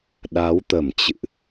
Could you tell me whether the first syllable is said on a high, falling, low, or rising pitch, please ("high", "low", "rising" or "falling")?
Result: rising